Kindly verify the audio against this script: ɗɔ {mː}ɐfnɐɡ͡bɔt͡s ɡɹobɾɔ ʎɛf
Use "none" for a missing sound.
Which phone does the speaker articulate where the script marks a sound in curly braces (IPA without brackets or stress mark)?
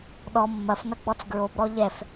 mː